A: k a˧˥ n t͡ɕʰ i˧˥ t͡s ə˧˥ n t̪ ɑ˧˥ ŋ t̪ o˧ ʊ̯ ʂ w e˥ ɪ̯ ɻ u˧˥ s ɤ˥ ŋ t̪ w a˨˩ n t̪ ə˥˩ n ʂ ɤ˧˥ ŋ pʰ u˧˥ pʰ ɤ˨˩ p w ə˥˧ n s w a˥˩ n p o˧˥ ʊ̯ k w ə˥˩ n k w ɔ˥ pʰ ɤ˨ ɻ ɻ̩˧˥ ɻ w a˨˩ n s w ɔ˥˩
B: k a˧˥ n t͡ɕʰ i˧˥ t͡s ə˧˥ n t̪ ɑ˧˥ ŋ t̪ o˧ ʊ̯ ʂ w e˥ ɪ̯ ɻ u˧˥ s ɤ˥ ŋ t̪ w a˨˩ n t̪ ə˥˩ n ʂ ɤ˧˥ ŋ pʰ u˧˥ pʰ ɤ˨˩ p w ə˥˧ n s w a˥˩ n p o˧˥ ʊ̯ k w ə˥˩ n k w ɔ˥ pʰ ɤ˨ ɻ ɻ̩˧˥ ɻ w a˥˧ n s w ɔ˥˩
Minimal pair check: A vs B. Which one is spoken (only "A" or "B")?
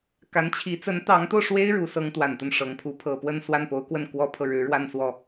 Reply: B